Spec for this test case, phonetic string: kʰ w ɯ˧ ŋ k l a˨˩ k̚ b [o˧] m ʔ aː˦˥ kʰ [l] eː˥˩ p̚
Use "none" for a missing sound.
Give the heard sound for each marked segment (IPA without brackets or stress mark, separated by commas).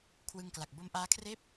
o˧, r